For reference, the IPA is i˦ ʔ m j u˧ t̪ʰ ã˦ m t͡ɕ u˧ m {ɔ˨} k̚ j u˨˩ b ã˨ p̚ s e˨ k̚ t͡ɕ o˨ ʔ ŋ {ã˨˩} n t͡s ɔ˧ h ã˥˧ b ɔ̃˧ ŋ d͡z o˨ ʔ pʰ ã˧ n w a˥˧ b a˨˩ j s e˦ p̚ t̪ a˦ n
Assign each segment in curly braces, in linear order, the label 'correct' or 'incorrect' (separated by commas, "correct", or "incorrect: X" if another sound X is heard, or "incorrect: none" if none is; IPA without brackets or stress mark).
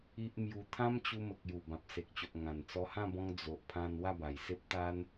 incorrect: ə˨, correct